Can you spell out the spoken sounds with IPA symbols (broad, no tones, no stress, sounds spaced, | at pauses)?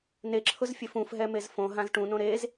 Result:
n e ǁʰ ʊ z fʲ e f ũ f ɦ ɛ m e z f õ ɦ ã z ʈ ũ n õ ɾ e z